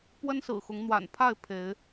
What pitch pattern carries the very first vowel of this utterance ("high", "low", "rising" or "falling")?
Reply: high